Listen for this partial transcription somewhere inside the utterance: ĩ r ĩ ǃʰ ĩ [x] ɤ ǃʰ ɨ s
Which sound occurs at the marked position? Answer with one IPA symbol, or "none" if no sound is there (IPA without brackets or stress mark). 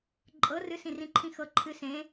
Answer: x